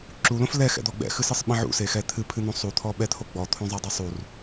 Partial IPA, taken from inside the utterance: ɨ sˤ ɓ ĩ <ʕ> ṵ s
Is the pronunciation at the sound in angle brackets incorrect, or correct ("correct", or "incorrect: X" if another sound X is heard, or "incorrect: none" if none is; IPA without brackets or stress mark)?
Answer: correct